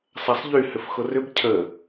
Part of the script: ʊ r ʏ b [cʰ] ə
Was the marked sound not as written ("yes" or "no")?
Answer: no